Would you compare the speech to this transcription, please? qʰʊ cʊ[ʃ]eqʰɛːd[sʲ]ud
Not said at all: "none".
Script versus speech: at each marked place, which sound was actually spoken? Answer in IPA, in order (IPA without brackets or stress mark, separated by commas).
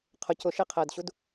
ʃ, ɕ